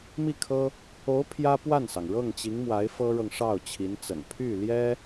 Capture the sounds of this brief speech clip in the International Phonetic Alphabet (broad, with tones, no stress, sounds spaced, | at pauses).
m i˥˩ kʰ ɤ˥ | o˧˥ ʊ̯ pʰ j ä˥ p w a˥˩ n s ɑ˩ ŋ ɻ ɤ˥˩ ŋ t͡ɕ i˧˥ ŋ m w a˧˥ ɪ̯ f ɤ˥ ɻ ɤ˨ ŋ ʂ ɑ˥˩ ʊ̯ t͡ɕʰ i˧˥ n t͡s ə̰˨˩ n pʰ y˥˩ l j ɛ˥